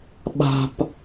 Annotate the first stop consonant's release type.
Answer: implosive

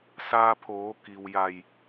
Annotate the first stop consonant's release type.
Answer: aspirated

